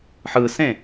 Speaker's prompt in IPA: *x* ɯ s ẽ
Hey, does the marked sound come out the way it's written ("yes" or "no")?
no